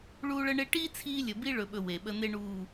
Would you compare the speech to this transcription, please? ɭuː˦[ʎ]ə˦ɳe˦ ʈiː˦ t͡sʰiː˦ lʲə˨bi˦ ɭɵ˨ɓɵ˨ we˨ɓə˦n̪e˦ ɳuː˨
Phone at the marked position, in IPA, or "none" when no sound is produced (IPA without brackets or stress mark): ɭ